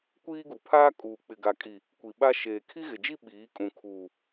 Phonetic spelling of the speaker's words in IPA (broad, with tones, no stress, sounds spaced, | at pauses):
kʷ iː˦ ɡ u˨ pʰ aː˦ kʼ uː˨ k͡p ɪ˨ ɡ a˨ kʼ i˨ | kʷ i˨ ɓ a˦ ʃ eː˨ kʰ i˦ ɣ ɪ˨ d͡ʒ i˦ ɓ iː˨˦ kʼ ũ˨ kʰ uː˨